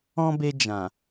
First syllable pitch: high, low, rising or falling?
high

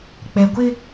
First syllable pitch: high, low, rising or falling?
low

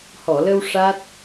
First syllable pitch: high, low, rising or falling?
low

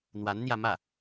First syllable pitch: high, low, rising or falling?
rising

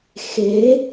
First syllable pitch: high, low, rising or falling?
rising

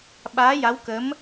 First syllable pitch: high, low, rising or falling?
rising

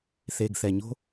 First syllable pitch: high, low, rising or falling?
low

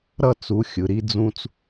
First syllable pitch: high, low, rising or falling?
falling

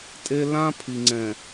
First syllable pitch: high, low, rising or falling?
high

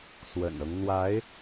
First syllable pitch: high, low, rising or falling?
low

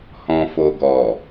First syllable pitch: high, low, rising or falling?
low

